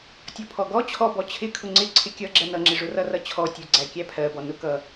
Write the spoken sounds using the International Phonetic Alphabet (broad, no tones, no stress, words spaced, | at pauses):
tʲɔpʰɔɡɔ t͡ɕʰɔ bɔt͡ɕʰɪkʰʊ ŋ͡ǀɪ ǀʰɪkʲʌ ɡ͡ǁɜnʌŋ͡ǁɪ ʐʊrʌrʌt͡ɕʰɔ tʲʊ ɡ͡ǀækʲæpʰɜbɔ nʊkʌ